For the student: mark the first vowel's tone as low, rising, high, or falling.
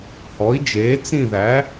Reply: rising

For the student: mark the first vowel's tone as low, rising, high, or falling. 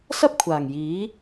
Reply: high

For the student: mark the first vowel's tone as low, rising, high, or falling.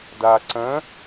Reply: low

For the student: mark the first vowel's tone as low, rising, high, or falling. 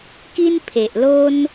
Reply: high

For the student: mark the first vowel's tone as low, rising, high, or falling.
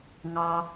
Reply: low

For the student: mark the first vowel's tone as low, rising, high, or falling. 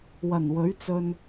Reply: low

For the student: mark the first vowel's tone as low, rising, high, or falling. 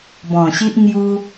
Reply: low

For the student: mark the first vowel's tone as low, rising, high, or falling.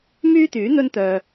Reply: high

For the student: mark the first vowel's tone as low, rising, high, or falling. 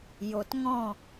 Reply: low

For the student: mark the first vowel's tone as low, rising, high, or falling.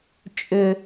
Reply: low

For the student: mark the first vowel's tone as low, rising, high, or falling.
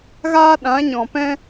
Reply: high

